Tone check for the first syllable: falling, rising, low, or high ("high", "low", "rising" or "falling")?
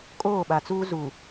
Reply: falling